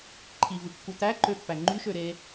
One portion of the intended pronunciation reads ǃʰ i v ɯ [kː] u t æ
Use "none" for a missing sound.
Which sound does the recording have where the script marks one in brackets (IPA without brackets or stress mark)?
kː